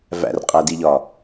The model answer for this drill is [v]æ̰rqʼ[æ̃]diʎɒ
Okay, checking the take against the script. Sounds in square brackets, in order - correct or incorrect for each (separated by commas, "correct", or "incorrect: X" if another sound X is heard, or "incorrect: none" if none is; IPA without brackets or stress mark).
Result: correct, incorrect: æ